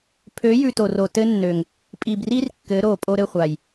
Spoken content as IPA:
pʰø˨˦jʉ˨ to˨ro˨ tɘ˦nːø˨ŋ | pʼi˨bri˦r kːɘ˨˦ɾo˨ pʼo˦ɾɘ˦˨χʷa˨j

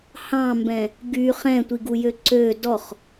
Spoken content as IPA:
hɑ̃mbɛ̃ | ɡy χɛ̃tʷiɡujø ǀø dɔχ

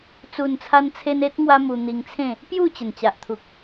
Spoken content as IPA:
t͡su˨˩nt͡sʰa˧nt͡sʰe˧n e˦t̚ ŋwa˦mu˧n̪i˧ŋt͡sʰẽ˥˧ | pju˥˧t͡ɕə˨˩nt͡ɕa˨ʔt̪ʰu˨k̚

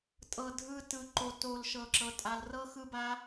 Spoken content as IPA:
tʼɤ˨dʱɯ˧ tɯ˨ǃo˨to˨l ʃɤ˨ǁɤ˨ tʼa˨lrɤ˦ xɯ˦ba˦

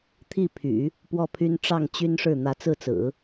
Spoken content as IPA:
t̪ʰi˥˩pʰy̰˨˩˦ | pwɔ˥˩pʰy˥n ʈ͡ʂɑ˥˩ŋt͡ɕy˥nʂɻ̩˥˩ n̪ä˧˥t͡sɹ̩˥˩t͡sɹ̩˨˩˦

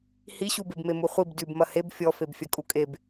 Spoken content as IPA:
hiɕubebme muχʷib dʉb mɐheb fʲɔ febfʲɐkʼukʼeb

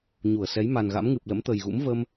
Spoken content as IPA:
ɲu˧˩ə̯sɛ˨˦j ma˨˩nɣa̰˧˥m ŋɨ˨˩p̚ lə̰˧˥mt̪ə˨˩j ɣṵ˧˥mvə˧m

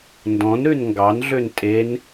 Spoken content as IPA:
ndɔ̃nɾʉn ŋɡɑnɮøn tʼen

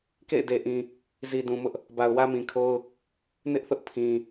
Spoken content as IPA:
kḛ˦˨ɪ̯de˨ʔĩ˨ | zi˨dũ˨mʊ˦ʔ | ba˨ʊ̯wä˦mĩ˨kʰo˦ʊ̯ | nɪ˦ʔθʊ˦ʔ pʰĩ˨

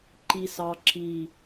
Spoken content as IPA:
ǃi˨sɑ˨ ǁi˨

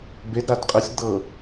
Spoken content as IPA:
bedɾad qʼəsʲd̪ɤ

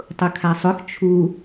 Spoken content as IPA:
tˤʊkʰasˤʊx t͡ʃʰu

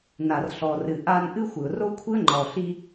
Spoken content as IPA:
na˩rɬɔ˩rɨ˩ ʔa˧n ʔɨ˥xʷɨ˩ʊ̯ro˥kʷʰɨ˥ə̯ ŋ͡ǃɔ˩ɬi˧

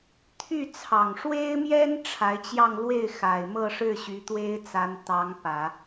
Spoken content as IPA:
t̪ʰy˥˩ t͡sʰɑ˨˩ŋʂwe˥ɪ̯mjɛ˥n ʈ͡ʂʰa˧˥ɪ̯t͡ɕjɑ˥˧ŋ lwe˥˩ɪ̯xa˨˩ɪ̯mɤ˥˧ʂɻ̩˥˩ ɕy˧˥t̪we˥ɪ̯t͡sa˧˥n t̪ɑ˧˥ŋpä˨˩˦

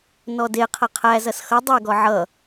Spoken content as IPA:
nɔde qʰɐqʰæzɐs xʌ dˤeɡɔ ʕʌ

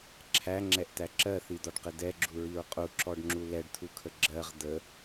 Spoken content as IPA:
ǁʰæŋ͡ǁɛʔt̪æ ǁɜθid̪ɒɖqɪ d̪ɛɡ͡ǁuɹiɹ qʼuǁɔɖŋ͡ǁu lɛɖt̪ʰukʰə ɡ͡ǁɜʁ d̪ə

